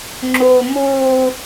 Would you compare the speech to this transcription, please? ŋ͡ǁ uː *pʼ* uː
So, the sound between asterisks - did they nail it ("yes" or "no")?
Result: no